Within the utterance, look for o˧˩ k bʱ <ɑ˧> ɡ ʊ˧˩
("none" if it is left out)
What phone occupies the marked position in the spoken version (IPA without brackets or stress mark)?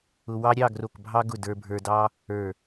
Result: ɑ˧